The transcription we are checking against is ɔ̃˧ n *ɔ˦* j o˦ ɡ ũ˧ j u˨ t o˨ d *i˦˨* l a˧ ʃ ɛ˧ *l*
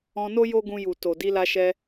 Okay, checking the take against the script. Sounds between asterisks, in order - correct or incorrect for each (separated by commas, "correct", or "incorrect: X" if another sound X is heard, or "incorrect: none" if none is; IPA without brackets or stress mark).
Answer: incorrect: o˦, incorrect: i˧, incorrect: none